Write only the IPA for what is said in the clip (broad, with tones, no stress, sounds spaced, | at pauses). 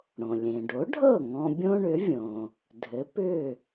ɽ õ˩ lʲ ẽ˩ ɖ o˩˥ ɖʱ ɤ˥˩ ŋ ɔ̃˧ bʲ õ˥ ɳ ʏ˩˥ vʲ õ˩ | dʱ ɘ˩˥ p ʏ˥˩